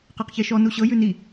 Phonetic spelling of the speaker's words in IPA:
q e q ç e ʃ ɔ n u ɕ ɤ j ʉ n i

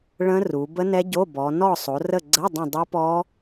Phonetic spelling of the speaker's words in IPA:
ɭ ə̃˦˥ r u˩˧ b ə˦˥ n ɛ˦˥ ɟ o˧˥˧ b ɔ˩˧ n ɔ˦˨ sˤ o˩˧ r ə˦˨ ɡ͡ǀ ə˧˥˧ dˤ ə̃˦˨ dˤ o˦˥ p ɔ˦˥

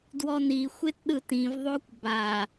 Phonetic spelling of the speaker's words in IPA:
d w ɔ n i xʷ e t ɗ ɯ t ĩ v ðˤ o kʷ b a

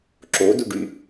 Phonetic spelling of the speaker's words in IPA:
ǁ o d u ɖ y

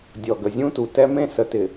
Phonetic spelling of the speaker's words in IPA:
dʲ ɔ˨ ɡ ə˨ zʲ ũ˦ t u˨ t ɛ˦ m ẽ˦ s ə˨ t ɪ˨

